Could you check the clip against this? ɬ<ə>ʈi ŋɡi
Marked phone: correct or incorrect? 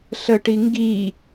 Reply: correct